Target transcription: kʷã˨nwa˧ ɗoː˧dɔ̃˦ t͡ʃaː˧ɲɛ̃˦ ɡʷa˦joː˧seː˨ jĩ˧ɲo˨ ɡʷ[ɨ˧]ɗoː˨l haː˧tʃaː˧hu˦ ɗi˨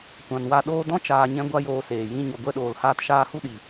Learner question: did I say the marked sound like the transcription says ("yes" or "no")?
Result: no